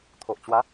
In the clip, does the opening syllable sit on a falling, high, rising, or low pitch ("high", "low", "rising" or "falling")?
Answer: low